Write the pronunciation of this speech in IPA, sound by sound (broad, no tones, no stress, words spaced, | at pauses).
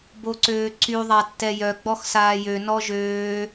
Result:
boǀøːǀy ðˤatːɛjœ ɡ͡bɔxsaːjø nɔʒøː